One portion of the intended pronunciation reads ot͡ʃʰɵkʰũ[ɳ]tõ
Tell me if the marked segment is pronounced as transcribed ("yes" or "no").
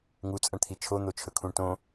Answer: yes